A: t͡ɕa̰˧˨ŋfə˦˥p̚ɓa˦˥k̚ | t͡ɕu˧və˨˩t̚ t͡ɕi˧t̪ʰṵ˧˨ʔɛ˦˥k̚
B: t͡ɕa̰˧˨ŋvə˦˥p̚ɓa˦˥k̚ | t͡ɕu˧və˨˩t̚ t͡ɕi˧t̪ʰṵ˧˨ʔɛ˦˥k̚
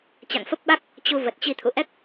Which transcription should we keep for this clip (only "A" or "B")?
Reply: A